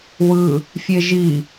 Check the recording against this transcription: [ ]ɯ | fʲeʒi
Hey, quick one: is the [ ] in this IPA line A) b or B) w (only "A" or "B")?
B